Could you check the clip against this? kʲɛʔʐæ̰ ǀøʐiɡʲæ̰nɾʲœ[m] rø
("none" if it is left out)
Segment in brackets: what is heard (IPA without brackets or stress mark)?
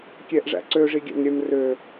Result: m